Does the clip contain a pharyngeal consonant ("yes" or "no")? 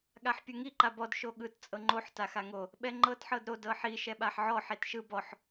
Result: yes